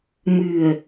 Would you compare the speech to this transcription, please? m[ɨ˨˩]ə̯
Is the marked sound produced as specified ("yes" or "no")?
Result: yes